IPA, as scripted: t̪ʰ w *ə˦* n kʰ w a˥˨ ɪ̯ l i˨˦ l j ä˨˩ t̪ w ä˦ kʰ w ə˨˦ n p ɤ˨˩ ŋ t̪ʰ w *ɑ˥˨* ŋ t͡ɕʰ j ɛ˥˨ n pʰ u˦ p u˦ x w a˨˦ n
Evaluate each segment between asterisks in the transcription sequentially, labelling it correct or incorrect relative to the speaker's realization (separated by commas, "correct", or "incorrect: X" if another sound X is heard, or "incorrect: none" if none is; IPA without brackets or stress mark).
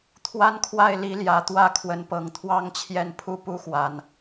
incorrect: a˦, correct